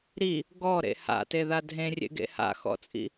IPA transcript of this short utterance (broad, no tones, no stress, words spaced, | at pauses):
ɾi | ɡɔɾḛ ha̰teða dʱẽrʲḛɡḛ ha̰xɔ̰t͡sʼḭ